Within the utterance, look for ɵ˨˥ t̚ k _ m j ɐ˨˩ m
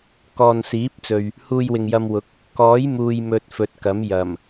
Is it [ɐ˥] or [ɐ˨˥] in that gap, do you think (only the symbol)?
ɐ˨˥